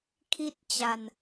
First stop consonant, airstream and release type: aspirated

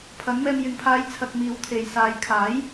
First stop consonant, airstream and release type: aspirated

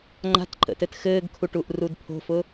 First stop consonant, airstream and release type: click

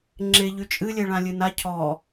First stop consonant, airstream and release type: click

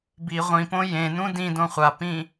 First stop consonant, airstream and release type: plain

